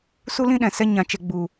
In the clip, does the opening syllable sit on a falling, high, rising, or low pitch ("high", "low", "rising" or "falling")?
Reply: high